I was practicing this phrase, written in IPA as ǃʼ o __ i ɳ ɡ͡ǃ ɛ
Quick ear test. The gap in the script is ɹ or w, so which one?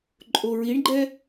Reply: ɹ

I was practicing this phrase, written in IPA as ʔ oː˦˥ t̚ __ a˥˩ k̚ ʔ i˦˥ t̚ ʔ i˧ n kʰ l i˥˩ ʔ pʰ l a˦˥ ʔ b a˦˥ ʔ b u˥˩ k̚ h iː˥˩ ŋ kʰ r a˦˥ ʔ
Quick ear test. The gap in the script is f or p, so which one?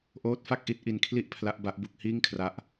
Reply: f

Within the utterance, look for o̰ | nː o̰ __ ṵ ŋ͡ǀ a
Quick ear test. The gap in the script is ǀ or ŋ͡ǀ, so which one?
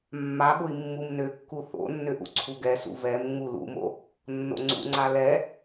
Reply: ŋ͡ǀ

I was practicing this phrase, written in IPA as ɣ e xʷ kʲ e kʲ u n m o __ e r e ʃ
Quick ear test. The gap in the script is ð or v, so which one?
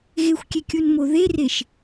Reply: ð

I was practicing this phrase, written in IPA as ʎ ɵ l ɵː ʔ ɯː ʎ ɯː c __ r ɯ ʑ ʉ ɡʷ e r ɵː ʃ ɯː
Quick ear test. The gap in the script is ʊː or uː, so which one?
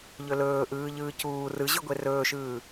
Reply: uː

